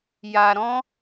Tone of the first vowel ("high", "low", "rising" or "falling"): low